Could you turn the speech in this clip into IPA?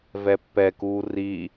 v ɛ pː ɛ k uː r i

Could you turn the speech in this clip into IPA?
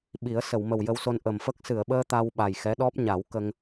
ɓ i˨˩˦ ə̯ s ə˨˩˨ w m ə˨˩ w j ə˧ w s o˧ n ʔ ə˨˩ m f ə˦˥ k̚ s ɨ˨˩˨ ə̯ ɓ əː˧ t̪ a˧ w ɓ a˨˩ j x ɛ˧˥ ɗ ɔ˦˥ p̚ ɲ a˨˩˦ w k ə˧ ŋ

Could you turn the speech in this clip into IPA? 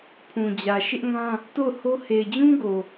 pʰ ũ˨ d͡ʑ ä˨ ʃ ɪ˦ ʔ ŋ ã˦ | t o˦˨ ʊ̯ h o˦ h e˨ ɪ̯ d͡ʑ ũ˦ ɡ o˨

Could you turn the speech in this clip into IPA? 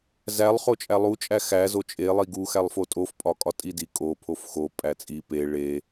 z æ lˠ χ o t͡ʃʼ æ lˠ u t͡ʃʼ æ x æ z o t͡ʃʼ e lˠ i ɡ u x æ lˠ f o tʼ o f pʼ ɒ kʼ ɒ tʼ i d i kʼ o pʰ o f x o pʼ æ t͡sʼ i p e ɭ e

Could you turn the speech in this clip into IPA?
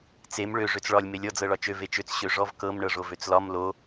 t͡s e m ɭ ø ʐ ø t͡s ɭ ɒ lʲ m e lʲ ɔ d͡z ɤ ɭ ɒ t͡ʃ ø v e t͡ʃ ø t͡s ɕ ø ʐ ɔ v k ɤ m ɳ ɤ ʐ o v ø t͡s l ɒ m l o

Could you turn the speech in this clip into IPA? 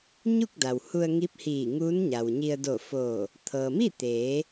ɲ u˥˨ k̚ d a˩ w h u˧ ə̯ ŋ i˧˥ p̚ h iː˧˩ ŋ u˧˥ n ɲ a˩ w ɲ i˧ ə̯ d o˧˩ f oː˧˩ | t̪ʰ ɤː˩ m i˥˨ t̪ eː˩˧

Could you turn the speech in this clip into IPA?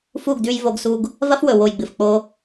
f u˦˨ ɡ d ʉ˧ j v o˧ ɡ s u˧ ɡ | v ɐ˦ f w ɵ˨ w o˨ j ɡ͡b ɨ˨ f k͡p o˧

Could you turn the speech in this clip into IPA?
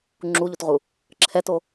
ŋ͡ǁ u ʎ u t ʁ u | ǁʰ ɛ t o

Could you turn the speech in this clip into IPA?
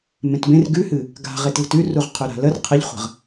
m ẽ t b ẽ r ɡ ʉ h ɨ | ɡ a̤ ʁ e t l ə̤ t ʉ r u ʁ qʰ ʉ ɾ a̤ l ə r qʰ ə ʎ χʷ ə̤ ʁ

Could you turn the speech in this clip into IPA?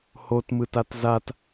h o t m ɯ t a t z a t

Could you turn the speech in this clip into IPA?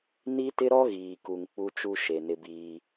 n i˦ t ɪ˦ ɾ ɔ˦ ɣ iː˨ k u˨ ŋ k͡p u˦ t͡ʃ u˦ ʃ e˨ n ɪ˦ b iː˦

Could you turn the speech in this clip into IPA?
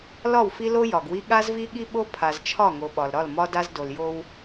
l ɒ˦˨ w f i˦ l o˦ j ɒ˨ ɡ w i˦ ɠ a˦ z v i˦ ɠ i˦ ɓ o˦ pʰ a˨ z t͡ʃʰ ɒ˦˨ ŋ o˨ ɓ ɒ˨ l ɾ ɒ˦˨ l m ɒ˦ d a˦ z d o˨ l j o˦ w

